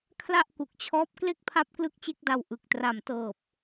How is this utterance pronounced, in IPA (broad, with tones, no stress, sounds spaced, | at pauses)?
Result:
kʰ l a˥˩ ʔ k u˨˩ k̚ t͡ɕʰ ɔː˦˥ p̚ k l e˥˩ k̚ pʰ a˦˥ p̚ k l ɯ˥˩ k̚ t͡ɕ e˥˩ k̚ d a˧ w ʔ ɯ˨˩ k̚ t r a˨˩ m t ɤː˨˩ p̚